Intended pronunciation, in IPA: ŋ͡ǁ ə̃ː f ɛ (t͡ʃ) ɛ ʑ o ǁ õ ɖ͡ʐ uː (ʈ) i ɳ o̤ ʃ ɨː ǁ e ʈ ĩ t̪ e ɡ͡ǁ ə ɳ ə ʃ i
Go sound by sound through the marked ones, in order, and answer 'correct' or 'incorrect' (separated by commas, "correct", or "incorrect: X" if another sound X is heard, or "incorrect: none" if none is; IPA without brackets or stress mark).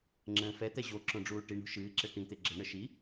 incorrect: t̪, correct